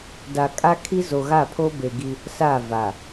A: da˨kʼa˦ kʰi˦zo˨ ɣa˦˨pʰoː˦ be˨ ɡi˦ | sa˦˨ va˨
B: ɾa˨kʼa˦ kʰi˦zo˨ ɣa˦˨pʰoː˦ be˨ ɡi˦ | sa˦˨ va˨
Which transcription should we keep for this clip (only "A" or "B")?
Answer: A